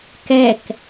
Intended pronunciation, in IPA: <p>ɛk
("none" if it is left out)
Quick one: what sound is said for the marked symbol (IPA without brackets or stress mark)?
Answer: k